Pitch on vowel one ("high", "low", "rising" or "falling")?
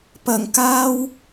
low